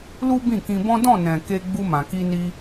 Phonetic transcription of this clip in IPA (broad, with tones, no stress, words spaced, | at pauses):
lu˦ bĩ˦˨kĩ˧bɔ̃˦ dɔ̃˦˨nɛ̃˨ ke˧ ɡ͡bu˧mã˨ki˧ni˧